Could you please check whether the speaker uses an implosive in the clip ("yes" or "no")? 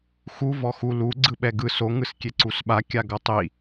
yes